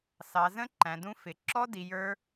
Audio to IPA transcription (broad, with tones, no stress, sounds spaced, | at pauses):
s ɑ˩˧ z ə̃˦˥ ǃ æ̃˩˧ d ũ˦˥ f ɪ˩˧ ǁ ɔ˦˥ d i˩˧ j ə˞˦˥